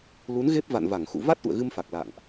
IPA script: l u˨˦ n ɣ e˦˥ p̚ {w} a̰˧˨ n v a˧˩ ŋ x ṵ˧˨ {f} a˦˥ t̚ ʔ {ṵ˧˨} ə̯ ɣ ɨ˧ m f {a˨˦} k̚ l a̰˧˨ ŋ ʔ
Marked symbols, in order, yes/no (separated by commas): no, no, yes, no